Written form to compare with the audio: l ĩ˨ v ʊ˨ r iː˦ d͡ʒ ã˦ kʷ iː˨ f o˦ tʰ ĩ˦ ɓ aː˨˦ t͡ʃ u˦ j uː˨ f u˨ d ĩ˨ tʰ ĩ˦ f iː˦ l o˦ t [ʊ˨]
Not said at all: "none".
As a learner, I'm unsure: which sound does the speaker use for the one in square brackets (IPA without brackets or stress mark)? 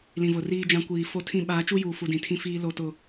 ʊ˦